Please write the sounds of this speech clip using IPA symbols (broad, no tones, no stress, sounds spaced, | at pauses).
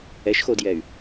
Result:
ɛ ʃ x o d j ɛ y̯